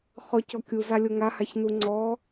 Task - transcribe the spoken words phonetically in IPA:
χ ɔ c ɔ kʲ u z a lʲ o ŋ a h a ç n u ŋ͡ǀ ɔ

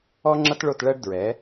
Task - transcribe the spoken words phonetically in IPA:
ɔ˦ ŋ͡ǁ ʌ˦ t ɭ o˦˨ t ɭ ɜ˦ ɖ d ɹ ɛ˨˦

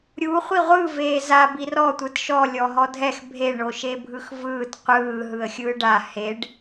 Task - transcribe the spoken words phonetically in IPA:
ɾʲ u χʷ i ʁʷ ɯ v eː z a b i r ɔ tʷ ɯ t ʃ ɔ lʲ ɔ ɦ ɔ dʱ ɛ x bʱ e ɳ o ʃ e bʱ ɯ x v ɯː t qʷ ɯː ɦ ɯ ə̯ xʲ ɯː ɖ a h e ɖ

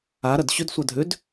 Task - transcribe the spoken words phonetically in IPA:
a ɾ ɐ d ɕ ʏ d sʷ a dʱ ʏ d

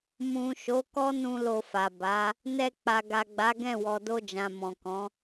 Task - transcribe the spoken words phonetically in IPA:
m ũ˨ ʃ o˨˦ k ɔ˦ n ũ˧ l o˧ f a˨ b a˨˦ | n ɛ˧ k͡p a˨ ɡ a˨ ɡ͡b a˨˦ ɡ ɛ̃˦˨ w ɔ˨ d o˧ d͡ʒ ã˨ m ɔ̃˨ k ɔ̃˨˦

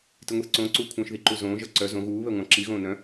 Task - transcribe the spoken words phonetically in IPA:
t i ŋʷ i θ ǀ õ ǀ uː kʷʰ œ̃ː ʃ ð i ǃ u z õː ʒ ʌ ǀ œ z õ ɣ uː β ɛ ŋʷ ɑ̃ ǁ i ɣ õː n œ̃

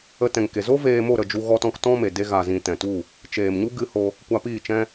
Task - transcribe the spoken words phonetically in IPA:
ə˧ t ɛ̃˨ ŋ k e˨ z o˦ v eː˧ m o˦˨ ɾ ə˦˨ d͡ʒ u˧ ɣ ɔ˧ t ɔ̃˧ k t ɔ̃˦ m e˨ d e˧ ɣ a˨ z ĩ˨ t ɛ̃˨ t u˦˨ | t͡ʃ eː˨ m ɲ u˦ ɡ ɨ˧ h o˧ | kʷ a˧ p iː˦˨ t͡ʃ ɛ̃˦

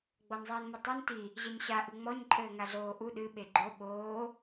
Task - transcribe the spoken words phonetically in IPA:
ɡ͡b ɔ n zˤ iː n m ɘ tˤ u n t i | ʑ ɛ ɲ ɕ a ʔ ɨ ŋ͡m ɔ ɲ ǃʼ ɘː ŋ a ɮ oː ʔ u ɗ ɨ ɓ e ɡ͡ǃ o ɓ oː

